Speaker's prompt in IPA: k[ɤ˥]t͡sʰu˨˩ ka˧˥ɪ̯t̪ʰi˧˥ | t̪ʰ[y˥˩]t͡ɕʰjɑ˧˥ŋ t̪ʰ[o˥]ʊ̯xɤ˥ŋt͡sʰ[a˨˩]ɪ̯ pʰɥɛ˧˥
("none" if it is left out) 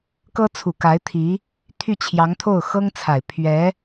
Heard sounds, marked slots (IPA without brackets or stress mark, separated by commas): ɤ˥, y˥˩, o˥˩, a˨˩